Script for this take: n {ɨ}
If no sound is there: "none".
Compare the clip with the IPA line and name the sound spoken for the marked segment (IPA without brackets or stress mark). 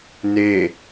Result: e